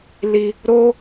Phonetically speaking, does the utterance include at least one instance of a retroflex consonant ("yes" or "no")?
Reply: no